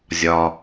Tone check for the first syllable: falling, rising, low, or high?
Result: low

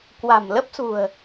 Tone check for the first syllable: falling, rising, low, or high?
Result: low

